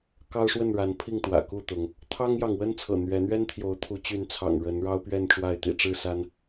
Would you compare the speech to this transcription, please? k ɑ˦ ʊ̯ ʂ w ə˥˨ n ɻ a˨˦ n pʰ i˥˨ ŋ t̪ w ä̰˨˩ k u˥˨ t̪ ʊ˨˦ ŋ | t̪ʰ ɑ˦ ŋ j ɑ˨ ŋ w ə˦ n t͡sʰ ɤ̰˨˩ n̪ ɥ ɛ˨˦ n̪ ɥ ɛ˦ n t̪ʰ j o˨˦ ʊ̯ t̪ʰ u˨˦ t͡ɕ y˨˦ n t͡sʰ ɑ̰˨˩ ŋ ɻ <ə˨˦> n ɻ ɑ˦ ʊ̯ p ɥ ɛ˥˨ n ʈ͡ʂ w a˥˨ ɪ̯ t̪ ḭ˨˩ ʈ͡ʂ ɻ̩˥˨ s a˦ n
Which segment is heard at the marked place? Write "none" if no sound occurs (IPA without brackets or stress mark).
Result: ə˨˦